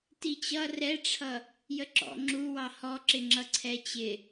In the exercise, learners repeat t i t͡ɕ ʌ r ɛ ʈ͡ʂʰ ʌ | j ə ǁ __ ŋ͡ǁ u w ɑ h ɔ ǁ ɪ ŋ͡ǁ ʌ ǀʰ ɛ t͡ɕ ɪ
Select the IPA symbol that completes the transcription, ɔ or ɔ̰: ɔ̰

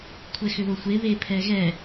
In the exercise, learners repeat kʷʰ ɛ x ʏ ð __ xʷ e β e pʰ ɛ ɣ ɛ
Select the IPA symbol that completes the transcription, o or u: o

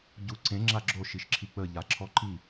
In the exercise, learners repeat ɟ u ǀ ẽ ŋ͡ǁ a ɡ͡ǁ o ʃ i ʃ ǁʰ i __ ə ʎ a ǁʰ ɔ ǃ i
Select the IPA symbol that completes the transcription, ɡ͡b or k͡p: k͡p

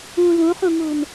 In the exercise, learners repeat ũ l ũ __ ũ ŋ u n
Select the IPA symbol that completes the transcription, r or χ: χ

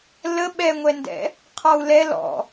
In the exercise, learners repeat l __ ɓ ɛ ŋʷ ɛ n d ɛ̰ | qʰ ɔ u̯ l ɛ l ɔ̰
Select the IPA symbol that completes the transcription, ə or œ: ə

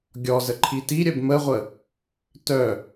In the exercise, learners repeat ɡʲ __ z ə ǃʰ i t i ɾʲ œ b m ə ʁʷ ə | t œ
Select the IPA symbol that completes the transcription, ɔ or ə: ɔ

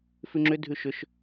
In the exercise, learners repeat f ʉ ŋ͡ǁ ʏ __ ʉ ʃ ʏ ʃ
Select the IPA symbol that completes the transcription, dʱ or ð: dʱ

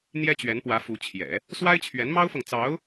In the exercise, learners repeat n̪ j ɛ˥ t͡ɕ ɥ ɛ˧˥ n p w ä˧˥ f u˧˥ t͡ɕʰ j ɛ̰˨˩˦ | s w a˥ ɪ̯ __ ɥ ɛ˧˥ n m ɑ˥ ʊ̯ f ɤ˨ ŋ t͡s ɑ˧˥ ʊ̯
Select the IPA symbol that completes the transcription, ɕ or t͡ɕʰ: t͡ɕʰ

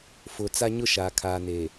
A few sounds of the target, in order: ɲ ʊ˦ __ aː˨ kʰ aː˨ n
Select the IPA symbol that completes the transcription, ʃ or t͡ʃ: ʃ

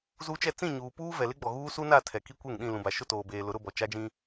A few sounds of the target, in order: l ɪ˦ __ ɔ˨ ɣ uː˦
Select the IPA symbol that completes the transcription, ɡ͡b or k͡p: ɡ͡b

